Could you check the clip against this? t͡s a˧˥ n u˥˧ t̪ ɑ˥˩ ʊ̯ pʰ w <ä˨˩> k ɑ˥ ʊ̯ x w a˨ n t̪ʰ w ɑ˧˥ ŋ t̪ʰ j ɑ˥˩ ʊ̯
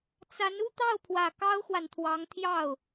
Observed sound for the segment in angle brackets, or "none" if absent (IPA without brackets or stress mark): ä˨˩